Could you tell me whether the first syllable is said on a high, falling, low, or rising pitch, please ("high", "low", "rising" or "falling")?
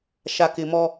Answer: low